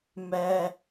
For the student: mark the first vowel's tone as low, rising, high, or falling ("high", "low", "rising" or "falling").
high